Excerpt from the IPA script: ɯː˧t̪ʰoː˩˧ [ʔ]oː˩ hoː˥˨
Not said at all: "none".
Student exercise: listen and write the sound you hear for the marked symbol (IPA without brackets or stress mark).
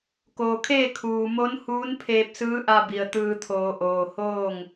ʔ